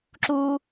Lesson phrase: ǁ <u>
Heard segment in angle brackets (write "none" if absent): u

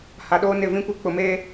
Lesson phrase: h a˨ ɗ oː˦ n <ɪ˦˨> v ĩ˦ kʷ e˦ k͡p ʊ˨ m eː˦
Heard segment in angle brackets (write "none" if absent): ɪ˦˨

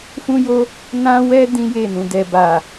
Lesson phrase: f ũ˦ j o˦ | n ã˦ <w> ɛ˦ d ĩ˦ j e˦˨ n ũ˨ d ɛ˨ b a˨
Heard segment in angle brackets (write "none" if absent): w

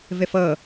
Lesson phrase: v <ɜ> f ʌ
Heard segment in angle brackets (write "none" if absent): ɛ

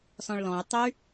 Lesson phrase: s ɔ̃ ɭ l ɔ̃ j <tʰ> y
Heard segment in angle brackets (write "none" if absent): tˤ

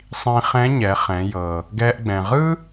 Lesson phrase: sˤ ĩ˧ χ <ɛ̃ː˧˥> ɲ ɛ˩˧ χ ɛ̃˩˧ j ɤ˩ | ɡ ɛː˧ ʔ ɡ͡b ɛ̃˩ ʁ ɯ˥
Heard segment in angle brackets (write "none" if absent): ɛ̃˧˥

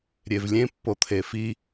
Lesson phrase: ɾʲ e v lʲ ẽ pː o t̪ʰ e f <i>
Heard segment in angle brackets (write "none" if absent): i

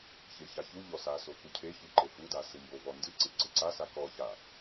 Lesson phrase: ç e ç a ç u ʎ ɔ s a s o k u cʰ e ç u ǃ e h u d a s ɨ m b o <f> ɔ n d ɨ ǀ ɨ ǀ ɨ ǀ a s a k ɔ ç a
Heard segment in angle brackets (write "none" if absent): v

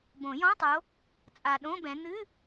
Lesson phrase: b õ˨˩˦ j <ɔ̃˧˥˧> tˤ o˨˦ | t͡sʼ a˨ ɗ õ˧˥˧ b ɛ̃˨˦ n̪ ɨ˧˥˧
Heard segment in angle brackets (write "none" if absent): ɔ̃˧˥˧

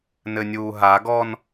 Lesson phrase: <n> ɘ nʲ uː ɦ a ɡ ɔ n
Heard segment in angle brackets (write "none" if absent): n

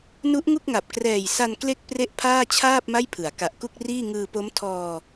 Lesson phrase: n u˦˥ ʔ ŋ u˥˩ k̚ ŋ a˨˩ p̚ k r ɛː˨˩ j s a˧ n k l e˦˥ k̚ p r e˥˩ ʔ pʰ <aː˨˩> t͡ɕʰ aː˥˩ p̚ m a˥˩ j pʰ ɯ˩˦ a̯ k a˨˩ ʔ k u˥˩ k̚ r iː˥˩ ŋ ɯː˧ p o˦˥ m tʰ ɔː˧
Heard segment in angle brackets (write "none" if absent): aː˥˩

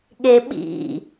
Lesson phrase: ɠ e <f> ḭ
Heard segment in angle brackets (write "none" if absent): ɓ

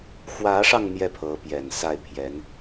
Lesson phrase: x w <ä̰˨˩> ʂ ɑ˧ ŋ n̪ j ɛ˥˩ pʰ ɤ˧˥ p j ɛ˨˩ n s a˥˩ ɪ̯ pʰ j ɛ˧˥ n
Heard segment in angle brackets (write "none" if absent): ä˧˥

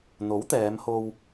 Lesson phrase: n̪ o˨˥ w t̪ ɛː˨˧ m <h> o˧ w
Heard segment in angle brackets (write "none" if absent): h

